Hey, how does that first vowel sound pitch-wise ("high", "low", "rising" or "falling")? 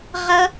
high